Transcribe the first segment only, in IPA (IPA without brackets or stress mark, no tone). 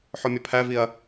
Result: ħ